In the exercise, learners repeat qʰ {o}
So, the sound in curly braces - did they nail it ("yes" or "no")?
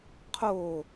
yes